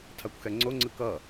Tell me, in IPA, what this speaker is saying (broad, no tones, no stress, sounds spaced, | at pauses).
tʰ a kʷ x ɛ ŋ͡ǀ o ŋ͡ǀ ɯ k ʌ